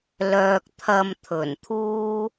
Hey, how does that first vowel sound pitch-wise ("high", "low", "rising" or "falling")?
low